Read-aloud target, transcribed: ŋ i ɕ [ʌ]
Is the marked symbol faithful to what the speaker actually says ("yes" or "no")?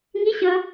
yes